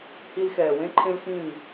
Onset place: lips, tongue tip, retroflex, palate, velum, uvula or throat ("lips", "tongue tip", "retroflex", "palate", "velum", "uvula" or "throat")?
throat